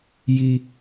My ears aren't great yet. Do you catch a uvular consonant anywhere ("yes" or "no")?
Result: no